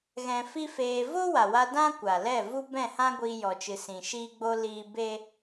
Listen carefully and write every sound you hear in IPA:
ɣɛ̃˧fi˦feː˧ vo˦wa˨wa˧ dã˦ kʷa˨lɛ˦˨ vu˦bɛ̃˦˨hã˦ɡʷiː˧ jɔ˨t͡ʃɨ˨sĩ˨ ʃiː˧ɡ͡bo˧ liː˧ be˦

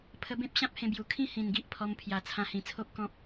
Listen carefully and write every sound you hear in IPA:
pʰə˧bẽ˦p̚ ɕã˦p̚hẽ˧bju˨˩ kʰĩ˥˧ hĩ˨˩nɡi˦ʔpʰɔ˧mpʰja˨˩ t͡sʰã˧hĩ˨˩t͡sʰo˦p̚ kɔ̃˦p̚

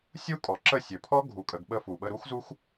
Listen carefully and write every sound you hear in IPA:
sʲu˦kʼɔ˨ǁə˦˨sʲɵ˨ pʰɔ˦ ɡʱu˨kʼə˨ɡɓə˧ fu˨ɓə˧ ɾu˦xzu˦x

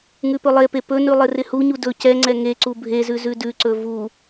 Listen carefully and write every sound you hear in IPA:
ŋʉpɵlˠepe pɵnʉ lˠɪrɪhuɲu dɵ cɛŋ͡ǀɛ ŋeǀu bʱezʉ zʉdʉǀɵ vu

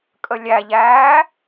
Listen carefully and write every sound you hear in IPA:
kʼəlʲæʎæː

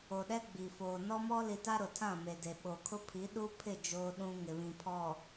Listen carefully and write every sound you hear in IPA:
o˨ɗɛ˦ ɡ͡bi˨foː˨ nɔ˦mɔ˦li˨ta˦ ɾʊ˨tʰã˦˨me˨de˨ ɓo˨kʰʊ˦ pʰi˨˦ɗu˦pʰɪ˦˨ d͡ʒoː˦ɗũ˦ ŋɪ˨βĩ˨pʰɔ˨

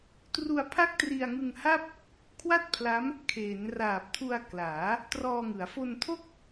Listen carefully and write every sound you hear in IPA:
tru˧a̯pʰa˥˩k̚tri˧a̯ ŋɯ˧ŋha˥˩p̚ | kʰwa˥˩t̚pʰla˦˥m | kʰeː˩˦nraː˨˩p̚tʰu˧a̯ klaː˩˦ | trɔː˧ŋɯ˩˦a̯ fo˧ntʰo˥˩k̚

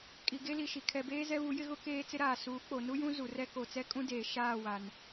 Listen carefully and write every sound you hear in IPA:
kʼi˨ɡe˦li˨ʃi˨ kʰɛ˨beː˦ zɛ˦βu˨˦ jɪ˦ɣʊ˦ keː˦ t͡sɪ˦ɾaː˨ suː˨˦k͡po˨ nu˦jũ˦ zu˨rɛ˦ ko˨t͡sɛ˦kʼũ˦ deː˨ ʃaː˦˨ wa˨n

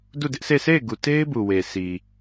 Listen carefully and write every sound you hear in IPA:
du˦˨dɪ˦ʔse˦˨ se˦˨ɪ̯ɡu˨te˦ɪ̯bu˨ we˨sʰi˨

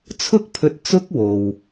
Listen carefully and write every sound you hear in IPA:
t͡sʰʊ˥k̚pʰɵ˧t̚ t͡sʊ˥k̚wo˨w

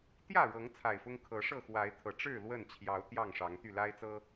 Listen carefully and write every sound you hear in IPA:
t̪jä˥˨ɻɤ˨˦ŋ t͡sʰa˨˩ɪ̯fʊ˦ŋ kʰɤ˨˦ ʂɤ˥˨xwa˨˦ɪ̯t̪ʰɤ˨˩ ʈ͡ʂɻ̩˥˨ lwə˥˨n t͡ɕʰjɑ˨˦ʊ̯ t̪jɑ˥˨ŋʂɑ˨˦ŋt̪y˥˨ la˦ɪ̯t͡sɤ˦

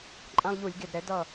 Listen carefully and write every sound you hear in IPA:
ǃʼã˦lˠʎu˧˩˧lʲɡe˧˩dɾɛ˩˥ dʌ˥˩

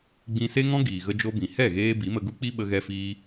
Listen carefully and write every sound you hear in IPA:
ɡ͡bĩ˧ se˦ŋɔ̃˦ ɡiː˨ɣə˧d͡ʒo˧bĩ˨ hɛ˦˨ɣeː˧ bi˨˦mə˧ɡu˦k͡pi˦ ɓə˧ɣɛ˧fiː˧

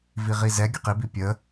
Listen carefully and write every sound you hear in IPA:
viʁizɛ ɡʲʊqibi pʲə

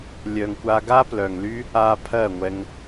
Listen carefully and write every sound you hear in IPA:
lʲœ˨ŋ kʷa˧ɡa˦plœ˨ŋly˦ | a˧ pʰɜ˦˨ŋʷɛ˧ŋ

